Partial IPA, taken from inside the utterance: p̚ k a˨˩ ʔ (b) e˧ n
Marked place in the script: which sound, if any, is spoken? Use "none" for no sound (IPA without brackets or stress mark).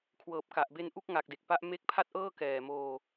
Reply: b